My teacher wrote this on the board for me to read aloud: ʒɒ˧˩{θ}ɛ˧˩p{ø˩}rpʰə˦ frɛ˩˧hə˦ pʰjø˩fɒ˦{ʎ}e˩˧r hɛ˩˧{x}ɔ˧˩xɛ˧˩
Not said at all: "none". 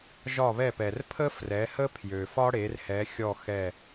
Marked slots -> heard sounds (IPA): β, ɛ˩, ɽ, xʲ

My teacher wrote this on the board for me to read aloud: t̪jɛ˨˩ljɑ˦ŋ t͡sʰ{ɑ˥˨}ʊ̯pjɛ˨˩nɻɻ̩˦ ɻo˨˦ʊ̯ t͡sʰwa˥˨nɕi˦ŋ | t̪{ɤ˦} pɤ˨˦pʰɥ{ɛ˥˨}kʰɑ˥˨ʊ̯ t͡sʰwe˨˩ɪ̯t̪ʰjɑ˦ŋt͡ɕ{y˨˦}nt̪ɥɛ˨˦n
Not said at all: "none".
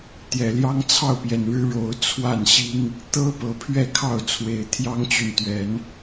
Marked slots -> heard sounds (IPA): ɑ˥˨, ɤ˦, ɛ˥˨, y˨

